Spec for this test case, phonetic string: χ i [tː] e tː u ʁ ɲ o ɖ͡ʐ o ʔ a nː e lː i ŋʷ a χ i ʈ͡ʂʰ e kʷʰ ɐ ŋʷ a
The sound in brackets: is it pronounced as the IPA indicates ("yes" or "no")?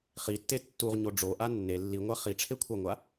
yes